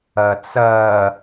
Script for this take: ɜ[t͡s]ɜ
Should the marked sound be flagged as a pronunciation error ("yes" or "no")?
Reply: no